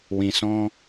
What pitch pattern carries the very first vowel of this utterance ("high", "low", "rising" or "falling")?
low